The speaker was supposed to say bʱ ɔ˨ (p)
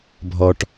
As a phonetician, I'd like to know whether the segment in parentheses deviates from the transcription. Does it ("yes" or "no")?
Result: yes